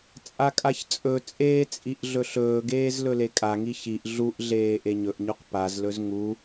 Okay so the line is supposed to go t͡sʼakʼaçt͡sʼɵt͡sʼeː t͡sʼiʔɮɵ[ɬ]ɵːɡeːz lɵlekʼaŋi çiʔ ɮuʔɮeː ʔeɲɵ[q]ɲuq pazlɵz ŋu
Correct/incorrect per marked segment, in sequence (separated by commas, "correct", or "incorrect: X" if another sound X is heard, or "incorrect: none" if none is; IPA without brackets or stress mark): correct, incorrect: ʔ